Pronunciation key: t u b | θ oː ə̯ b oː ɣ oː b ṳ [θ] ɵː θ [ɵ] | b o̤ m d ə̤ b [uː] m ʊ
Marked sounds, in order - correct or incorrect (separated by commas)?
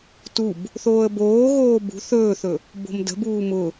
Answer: correct, correct, correct